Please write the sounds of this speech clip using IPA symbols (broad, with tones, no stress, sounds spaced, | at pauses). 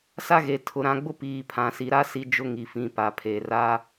s a˦ ɣ e˨ tʰ ʊ˨ ɾ ã˨ ɡ͡b ʊ˦ p iː˨ pʰ ã˨ s i˨ ɾ a˦ s i˦ d͡ʒ ʊ˦ ŋ i˨ f ĩ˨ p a˨ pʰ e˨ r a˦